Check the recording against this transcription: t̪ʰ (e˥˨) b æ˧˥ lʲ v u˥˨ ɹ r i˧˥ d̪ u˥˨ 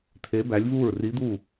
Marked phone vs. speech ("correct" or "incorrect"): incorrect